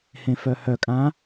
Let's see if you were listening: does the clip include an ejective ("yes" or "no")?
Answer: yes